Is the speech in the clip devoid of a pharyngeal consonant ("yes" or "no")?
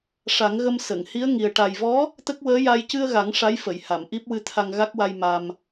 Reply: yes